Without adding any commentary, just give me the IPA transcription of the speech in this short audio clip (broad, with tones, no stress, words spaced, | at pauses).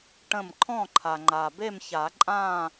ʈə̃˧˩m ǃʰɔ̃˥˨ǃʰa˩ŋ͡ǃa˩be˥˨m ça˨˩˦ǃʼã˥˨